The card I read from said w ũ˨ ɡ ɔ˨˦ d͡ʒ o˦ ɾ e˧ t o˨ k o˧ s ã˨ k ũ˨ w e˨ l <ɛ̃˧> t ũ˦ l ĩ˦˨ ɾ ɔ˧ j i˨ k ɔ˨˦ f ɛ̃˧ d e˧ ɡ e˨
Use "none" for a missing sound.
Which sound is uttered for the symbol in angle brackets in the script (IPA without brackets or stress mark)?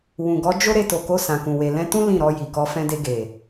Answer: ɛ̃˧